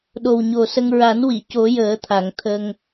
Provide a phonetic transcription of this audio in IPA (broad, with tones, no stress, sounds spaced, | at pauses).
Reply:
ɗ o˨˩ w ɲ o˨˩ s ə˧ ŋ ɹ a˨˩˦ n w i˨˩˨ c o˨˩˦ j əː˨˩˦ t̪ʰ a˨˩˨ ŋ t̪ʰ ə˧ ŋ